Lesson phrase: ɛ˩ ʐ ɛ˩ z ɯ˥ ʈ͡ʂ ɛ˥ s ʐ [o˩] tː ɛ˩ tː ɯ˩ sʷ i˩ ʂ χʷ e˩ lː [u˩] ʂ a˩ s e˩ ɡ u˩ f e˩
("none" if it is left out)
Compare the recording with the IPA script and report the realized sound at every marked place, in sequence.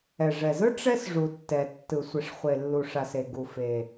u˩, u˩

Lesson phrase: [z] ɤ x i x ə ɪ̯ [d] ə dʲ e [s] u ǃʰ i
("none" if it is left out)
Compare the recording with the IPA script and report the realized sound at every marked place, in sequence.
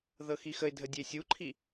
ð, dʱ, sʲ

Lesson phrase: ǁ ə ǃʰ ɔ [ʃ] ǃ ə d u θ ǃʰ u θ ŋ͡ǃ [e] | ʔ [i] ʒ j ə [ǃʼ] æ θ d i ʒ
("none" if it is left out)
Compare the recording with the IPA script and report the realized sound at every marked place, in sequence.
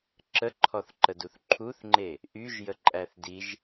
θ, e, y, ǃʼ

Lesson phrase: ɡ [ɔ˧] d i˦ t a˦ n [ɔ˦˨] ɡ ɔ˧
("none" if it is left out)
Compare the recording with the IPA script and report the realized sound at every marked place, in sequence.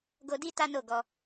o˧, o˦˨

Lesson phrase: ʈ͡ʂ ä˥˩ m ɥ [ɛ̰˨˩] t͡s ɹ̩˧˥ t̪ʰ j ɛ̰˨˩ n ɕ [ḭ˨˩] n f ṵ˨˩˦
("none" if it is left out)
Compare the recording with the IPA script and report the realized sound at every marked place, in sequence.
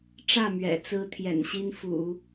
ɛ̰˨˩, i˥

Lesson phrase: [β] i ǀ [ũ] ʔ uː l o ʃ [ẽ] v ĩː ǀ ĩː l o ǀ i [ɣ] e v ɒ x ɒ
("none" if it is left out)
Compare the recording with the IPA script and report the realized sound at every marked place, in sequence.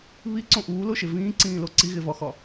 β, õ, e, ɣ

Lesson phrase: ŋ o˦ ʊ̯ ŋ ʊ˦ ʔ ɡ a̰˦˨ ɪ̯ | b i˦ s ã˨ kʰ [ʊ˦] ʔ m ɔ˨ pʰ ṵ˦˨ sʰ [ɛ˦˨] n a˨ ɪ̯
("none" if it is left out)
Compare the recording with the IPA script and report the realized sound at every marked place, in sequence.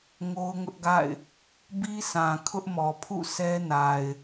ʊ˦, ɛ˦

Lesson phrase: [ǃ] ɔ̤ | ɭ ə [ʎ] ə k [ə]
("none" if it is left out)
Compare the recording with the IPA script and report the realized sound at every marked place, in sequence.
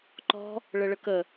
ǃ, ɭ, ə

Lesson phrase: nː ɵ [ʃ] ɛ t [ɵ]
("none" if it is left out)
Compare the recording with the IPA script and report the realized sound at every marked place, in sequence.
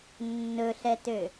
ɬ, ø

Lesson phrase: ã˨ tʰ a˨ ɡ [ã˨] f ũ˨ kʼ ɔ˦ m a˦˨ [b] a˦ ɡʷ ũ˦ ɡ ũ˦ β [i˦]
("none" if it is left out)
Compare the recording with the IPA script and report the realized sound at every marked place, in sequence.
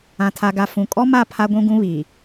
a˨, pʰ, i˨

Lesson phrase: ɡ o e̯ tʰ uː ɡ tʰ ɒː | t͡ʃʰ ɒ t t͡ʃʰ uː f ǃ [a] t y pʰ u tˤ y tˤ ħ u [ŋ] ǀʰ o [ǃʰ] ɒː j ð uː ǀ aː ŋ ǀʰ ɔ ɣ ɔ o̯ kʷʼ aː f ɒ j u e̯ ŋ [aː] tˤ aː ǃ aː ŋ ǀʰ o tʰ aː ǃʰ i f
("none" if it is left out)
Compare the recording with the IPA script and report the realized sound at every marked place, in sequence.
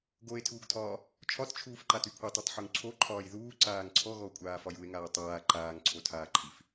a, ŋ, ǃʰ, aː

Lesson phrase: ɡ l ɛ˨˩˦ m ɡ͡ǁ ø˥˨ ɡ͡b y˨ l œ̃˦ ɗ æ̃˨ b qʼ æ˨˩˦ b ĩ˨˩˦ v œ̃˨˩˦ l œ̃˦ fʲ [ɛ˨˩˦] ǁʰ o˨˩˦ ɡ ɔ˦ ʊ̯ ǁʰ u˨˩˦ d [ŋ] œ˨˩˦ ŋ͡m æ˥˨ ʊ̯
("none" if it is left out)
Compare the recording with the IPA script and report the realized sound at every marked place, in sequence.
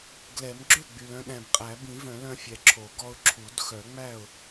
ɛ˨, x

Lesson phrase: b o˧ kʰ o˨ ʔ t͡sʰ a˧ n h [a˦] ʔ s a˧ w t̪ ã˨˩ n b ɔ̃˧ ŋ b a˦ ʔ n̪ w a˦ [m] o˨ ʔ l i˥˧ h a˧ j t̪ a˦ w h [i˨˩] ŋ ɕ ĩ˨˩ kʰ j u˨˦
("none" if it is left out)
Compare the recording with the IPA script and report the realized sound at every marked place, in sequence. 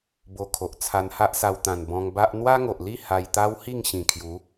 a˦, ŋ, i˥˧

